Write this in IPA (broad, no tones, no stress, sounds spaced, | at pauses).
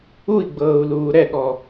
u i̯ ɡ͡b ɤː u̯ l uː ɾ ɛ ɠ ɔ